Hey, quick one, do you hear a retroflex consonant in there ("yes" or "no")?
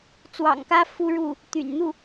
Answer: yes